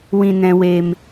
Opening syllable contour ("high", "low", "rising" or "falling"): low